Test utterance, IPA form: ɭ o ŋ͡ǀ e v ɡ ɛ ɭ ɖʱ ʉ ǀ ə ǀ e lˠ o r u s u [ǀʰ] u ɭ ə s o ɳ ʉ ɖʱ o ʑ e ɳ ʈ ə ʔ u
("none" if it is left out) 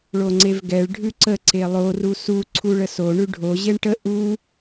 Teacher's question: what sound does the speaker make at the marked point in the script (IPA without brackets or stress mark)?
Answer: ǀʰ